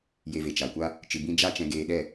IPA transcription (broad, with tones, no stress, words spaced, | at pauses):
je˧ve˨t͡ʃa˨kʷa˦ | t͡ʃɨ˨bĩ˧ d͡ʒa˦t͡ʃɛ̃˧ɡeː˧ɗɛ˦˨